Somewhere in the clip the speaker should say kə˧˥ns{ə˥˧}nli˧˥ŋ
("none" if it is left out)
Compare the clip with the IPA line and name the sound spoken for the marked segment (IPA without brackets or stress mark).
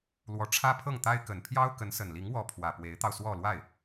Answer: ə˨˩